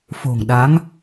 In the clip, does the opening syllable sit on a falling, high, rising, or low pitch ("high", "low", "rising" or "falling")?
low